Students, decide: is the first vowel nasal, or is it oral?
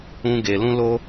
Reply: nasal